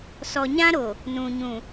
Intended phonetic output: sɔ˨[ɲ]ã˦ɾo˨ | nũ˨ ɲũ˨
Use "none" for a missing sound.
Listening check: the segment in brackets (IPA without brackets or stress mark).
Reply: ɲ